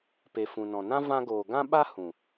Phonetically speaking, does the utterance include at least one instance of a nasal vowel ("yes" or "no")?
yes